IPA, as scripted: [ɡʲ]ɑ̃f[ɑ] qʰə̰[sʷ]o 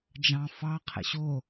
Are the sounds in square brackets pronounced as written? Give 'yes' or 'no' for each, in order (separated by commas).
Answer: no, yes, no